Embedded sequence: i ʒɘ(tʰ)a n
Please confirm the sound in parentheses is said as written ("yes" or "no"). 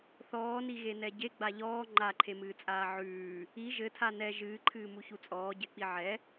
yes